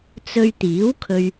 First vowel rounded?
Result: yes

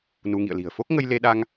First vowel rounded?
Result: yes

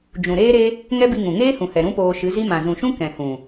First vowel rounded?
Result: yes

